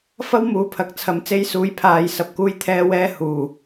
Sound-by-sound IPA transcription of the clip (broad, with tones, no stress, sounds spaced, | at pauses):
f ɐ˥ w m uː˨ pʰ ɐ˨ k̚ t͡sʰ ɐ˨˧ m t͡s e˧ j s uː˨˥ j pʰ aː˨ j s ɐ˨ p̚ k uː˧ j t̪ʰ ɛː˧ w ɛː˧ h uː˨˩